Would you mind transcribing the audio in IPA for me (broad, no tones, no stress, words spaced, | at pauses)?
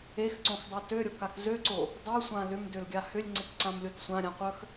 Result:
exǀõxdˤo tøɾʲokak zøǀo | dˤosʷã lʏmdølɡʲa hʏlʲŋ͡ǀɪkǀãmlʲot sʷãɾʲãqʷœx